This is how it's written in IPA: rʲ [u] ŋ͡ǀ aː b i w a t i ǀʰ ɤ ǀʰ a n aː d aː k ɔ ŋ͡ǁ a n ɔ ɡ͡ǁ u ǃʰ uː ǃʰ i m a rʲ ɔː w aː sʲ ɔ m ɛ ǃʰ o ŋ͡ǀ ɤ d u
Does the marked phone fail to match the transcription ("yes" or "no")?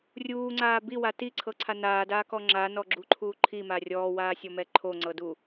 yes